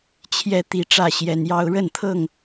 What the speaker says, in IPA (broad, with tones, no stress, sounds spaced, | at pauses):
t͡ɕʰ j ɛ˦ t̪ i˨˦ ʈ͡ʂ ä˥˨ ɕ j ɛ˨˦ n j ɑ˦ ʊ̯ ɻ ə˥˨ n t̪ʰ ɤ˥˨ ŋ